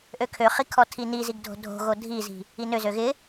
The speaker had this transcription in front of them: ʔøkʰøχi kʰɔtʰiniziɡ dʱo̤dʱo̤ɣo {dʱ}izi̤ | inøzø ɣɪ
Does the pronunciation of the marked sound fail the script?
no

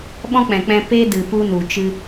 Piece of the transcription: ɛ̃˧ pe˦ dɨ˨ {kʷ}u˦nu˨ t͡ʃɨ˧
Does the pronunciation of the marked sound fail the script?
yes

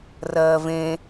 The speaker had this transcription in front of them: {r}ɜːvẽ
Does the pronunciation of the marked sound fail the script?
no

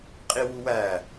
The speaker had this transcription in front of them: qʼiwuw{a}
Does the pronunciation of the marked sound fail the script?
yes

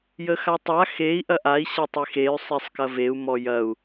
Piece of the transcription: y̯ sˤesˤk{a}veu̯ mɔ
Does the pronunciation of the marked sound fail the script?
yes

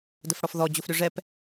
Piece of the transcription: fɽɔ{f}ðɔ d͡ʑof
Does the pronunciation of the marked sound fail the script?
no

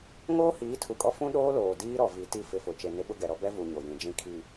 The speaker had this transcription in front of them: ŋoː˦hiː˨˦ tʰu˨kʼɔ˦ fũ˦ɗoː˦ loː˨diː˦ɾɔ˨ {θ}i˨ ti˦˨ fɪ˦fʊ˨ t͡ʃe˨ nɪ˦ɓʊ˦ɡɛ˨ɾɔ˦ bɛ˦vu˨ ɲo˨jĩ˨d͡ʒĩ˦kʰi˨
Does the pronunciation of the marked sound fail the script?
yes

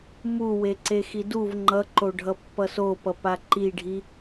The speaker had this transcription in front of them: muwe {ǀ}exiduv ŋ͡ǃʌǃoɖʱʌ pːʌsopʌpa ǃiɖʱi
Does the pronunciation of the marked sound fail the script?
no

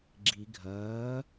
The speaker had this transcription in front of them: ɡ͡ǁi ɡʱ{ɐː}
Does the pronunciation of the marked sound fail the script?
no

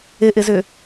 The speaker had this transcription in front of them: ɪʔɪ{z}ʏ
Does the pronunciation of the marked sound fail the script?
no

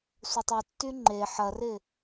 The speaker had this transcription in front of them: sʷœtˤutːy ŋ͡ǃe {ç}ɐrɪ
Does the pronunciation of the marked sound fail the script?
yes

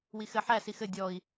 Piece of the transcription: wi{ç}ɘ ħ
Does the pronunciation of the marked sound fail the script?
yes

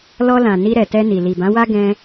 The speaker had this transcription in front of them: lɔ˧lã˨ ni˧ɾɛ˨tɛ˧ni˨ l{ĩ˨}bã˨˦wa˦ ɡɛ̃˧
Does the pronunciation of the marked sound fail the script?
yes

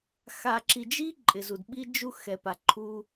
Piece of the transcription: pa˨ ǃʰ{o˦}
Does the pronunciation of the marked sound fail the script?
yes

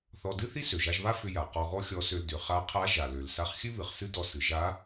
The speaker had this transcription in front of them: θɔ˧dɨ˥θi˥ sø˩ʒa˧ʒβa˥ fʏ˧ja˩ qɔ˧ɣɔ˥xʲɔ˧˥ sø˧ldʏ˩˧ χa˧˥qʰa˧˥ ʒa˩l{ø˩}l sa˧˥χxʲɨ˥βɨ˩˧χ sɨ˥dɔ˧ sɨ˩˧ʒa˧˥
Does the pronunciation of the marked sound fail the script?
no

